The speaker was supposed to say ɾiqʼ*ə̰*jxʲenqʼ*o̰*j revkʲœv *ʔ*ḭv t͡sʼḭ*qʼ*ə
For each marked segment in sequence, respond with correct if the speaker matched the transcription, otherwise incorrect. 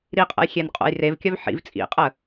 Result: correct, correct, incorrect, correct

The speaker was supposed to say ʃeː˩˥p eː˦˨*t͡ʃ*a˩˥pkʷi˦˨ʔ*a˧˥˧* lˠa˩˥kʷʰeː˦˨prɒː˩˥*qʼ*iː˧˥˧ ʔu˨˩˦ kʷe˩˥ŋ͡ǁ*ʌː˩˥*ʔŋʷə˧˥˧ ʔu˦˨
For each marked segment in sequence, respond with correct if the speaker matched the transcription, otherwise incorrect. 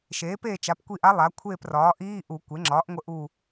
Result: correct, incorrect, incorrect, incorrect

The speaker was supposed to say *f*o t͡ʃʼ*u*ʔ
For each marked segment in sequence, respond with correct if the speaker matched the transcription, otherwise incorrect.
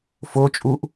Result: correct, correct

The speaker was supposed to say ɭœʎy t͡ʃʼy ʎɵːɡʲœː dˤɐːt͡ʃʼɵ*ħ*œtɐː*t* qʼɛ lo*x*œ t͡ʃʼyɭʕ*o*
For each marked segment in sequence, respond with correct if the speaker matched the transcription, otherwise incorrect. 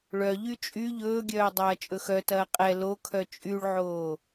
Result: incorrect, incorrect, incorrect, incorrect

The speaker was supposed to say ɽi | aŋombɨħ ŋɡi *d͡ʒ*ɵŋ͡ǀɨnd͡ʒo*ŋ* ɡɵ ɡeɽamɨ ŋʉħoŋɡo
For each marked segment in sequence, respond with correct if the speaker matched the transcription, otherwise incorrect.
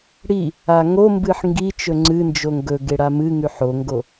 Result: incorrect, correct

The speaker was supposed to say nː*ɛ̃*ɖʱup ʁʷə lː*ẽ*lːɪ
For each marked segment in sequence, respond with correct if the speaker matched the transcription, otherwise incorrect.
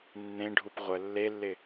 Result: incorrect, incorrect

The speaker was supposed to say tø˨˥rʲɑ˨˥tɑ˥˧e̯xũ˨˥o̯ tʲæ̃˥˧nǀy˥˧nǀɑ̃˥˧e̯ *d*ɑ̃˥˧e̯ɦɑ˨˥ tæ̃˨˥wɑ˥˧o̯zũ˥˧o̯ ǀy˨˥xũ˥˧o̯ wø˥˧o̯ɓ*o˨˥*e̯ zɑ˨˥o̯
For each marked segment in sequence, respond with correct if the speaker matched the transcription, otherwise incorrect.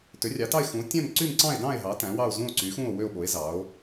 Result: correct, correct

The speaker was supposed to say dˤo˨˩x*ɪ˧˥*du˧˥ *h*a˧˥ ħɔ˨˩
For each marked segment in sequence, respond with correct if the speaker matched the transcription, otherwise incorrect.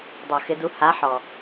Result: correct, correct

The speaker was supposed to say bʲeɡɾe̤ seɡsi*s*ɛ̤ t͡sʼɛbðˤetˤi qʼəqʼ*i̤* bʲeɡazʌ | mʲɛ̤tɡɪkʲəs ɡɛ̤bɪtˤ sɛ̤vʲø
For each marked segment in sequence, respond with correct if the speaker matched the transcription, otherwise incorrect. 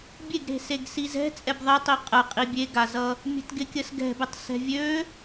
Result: incorrect, incorrect

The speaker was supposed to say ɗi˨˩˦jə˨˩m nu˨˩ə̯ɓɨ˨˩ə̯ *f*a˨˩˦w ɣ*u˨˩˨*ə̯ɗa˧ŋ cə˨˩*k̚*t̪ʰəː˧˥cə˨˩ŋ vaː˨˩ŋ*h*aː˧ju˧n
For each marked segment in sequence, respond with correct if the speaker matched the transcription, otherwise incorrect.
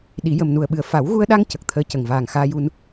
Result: correct, incorrect, correct, incorrect

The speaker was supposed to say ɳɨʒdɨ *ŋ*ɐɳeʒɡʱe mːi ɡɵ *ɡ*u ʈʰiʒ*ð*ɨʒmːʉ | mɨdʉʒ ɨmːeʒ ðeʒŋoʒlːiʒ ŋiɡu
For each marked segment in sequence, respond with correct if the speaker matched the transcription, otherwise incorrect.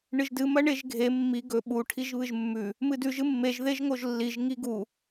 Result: incorrect, incorrect, incorrect

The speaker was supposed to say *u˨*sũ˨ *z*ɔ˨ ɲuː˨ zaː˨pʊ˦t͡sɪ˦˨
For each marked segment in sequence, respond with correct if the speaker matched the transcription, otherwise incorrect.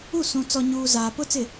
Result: incorrect, incorrect

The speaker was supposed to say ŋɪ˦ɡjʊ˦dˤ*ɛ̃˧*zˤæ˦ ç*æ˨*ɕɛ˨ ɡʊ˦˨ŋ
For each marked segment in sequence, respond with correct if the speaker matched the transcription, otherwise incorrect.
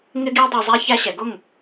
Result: incorrect, incorrect

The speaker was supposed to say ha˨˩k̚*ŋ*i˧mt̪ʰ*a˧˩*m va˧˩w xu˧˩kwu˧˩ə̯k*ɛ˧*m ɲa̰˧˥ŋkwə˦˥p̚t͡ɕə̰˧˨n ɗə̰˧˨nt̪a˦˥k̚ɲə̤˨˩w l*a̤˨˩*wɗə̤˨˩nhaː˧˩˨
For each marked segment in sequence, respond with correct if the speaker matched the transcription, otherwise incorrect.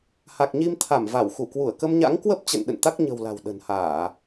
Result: incorrect, correct, incorrect, correct

